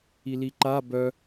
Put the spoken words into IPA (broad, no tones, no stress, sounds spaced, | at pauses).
i l i ǃ a b œ